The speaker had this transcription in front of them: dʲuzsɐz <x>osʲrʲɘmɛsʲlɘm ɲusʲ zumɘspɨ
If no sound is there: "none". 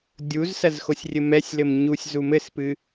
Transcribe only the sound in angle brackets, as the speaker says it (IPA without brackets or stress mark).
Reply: x